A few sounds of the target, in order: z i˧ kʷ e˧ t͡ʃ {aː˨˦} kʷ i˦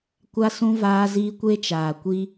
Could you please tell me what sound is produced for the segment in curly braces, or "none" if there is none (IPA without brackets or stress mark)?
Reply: aː˨